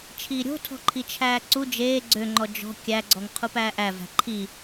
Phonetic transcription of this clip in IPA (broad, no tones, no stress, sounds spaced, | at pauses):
t͡ʃʰ iː ɾʲ o̤ tʰ ɔ̤ ǃʰ i t͡ʃʰ æː ǀ u d͡ʒ eː ɡ͡ǀ ø ŋ͡ǃ ɔ d͡ʒ ɔ̤ kʲ æ ɡ͡ǀ ɔ ŋ qʰ u p æː ʔ æ v æ̤ ǃʰ i